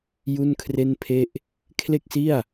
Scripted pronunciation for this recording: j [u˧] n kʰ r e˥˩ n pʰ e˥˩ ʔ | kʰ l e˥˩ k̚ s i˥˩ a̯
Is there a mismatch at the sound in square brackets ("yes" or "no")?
yes